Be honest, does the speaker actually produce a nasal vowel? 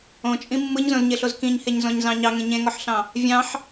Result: yes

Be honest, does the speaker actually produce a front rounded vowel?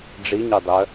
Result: yes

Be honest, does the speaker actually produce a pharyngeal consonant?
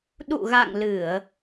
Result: no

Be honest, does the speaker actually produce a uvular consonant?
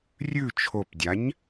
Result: no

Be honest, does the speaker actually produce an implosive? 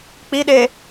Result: yes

